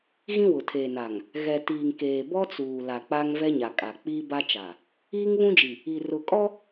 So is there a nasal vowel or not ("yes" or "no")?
yes